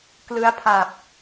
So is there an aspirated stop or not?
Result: yes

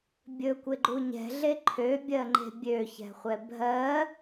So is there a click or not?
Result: yes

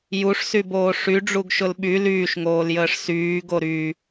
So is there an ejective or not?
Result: no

